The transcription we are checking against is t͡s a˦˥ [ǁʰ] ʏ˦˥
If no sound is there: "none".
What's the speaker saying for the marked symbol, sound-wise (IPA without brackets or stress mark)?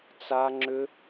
ŋ͡ǁ